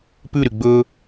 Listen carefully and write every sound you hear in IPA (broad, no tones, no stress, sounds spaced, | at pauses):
p ʉ ɾ y ɡ͡b ɵ